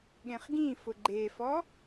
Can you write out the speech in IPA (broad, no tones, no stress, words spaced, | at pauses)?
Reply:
ɠẽχɡĩfʊ ɡ͡ǃefɔ